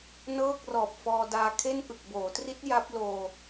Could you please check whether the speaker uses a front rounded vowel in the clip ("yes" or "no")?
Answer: no